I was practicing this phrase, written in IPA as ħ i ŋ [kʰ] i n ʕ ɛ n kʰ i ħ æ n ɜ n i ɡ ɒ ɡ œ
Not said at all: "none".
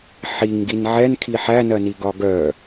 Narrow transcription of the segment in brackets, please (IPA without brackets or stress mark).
ɡ